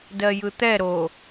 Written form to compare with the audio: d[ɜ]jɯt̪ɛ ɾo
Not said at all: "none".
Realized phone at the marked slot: ɜ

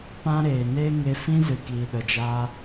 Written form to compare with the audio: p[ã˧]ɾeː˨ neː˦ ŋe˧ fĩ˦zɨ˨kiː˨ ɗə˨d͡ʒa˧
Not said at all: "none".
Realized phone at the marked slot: ã˦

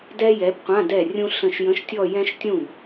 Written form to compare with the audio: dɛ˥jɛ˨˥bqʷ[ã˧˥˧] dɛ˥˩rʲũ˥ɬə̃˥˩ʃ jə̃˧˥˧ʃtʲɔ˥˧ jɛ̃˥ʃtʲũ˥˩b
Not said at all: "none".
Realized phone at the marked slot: ã˧˥˧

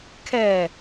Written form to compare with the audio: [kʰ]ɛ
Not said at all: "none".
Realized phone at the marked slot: kʰ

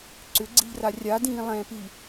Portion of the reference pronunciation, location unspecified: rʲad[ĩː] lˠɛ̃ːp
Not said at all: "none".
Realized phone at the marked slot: ĩː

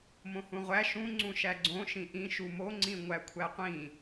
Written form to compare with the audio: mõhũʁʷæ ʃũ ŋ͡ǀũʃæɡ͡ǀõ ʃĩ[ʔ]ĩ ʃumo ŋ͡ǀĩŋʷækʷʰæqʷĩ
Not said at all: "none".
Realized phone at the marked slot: ʔ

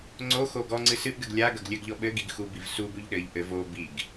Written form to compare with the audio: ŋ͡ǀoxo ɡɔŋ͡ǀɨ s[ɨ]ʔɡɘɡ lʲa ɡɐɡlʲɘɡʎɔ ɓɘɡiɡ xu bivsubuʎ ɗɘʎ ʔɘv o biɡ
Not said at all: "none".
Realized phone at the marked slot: ɨ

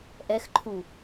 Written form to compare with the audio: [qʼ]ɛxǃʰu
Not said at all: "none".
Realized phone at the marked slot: ʔ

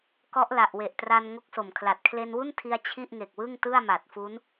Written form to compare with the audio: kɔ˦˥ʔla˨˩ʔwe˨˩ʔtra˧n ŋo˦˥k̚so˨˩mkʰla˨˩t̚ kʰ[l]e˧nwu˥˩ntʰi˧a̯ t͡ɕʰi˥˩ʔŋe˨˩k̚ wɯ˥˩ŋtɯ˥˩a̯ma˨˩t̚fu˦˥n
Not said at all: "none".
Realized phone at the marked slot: l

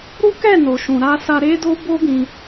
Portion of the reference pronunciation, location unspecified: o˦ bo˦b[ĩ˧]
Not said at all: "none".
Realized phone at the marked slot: ĩ˧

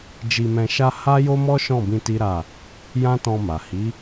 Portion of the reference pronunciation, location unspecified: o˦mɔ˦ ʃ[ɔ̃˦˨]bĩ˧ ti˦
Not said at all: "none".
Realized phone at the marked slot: ɔ̃˦˨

